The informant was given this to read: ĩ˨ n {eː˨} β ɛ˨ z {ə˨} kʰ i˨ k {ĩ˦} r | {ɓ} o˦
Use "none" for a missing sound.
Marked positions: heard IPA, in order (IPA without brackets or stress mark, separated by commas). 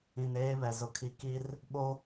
eː˦, ʊ˨, i˦, ɓ